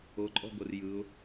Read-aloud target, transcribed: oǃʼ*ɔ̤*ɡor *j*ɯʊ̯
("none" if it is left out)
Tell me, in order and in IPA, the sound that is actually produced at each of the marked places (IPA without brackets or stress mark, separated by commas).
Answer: ɔ̤, j